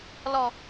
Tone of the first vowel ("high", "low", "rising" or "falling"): low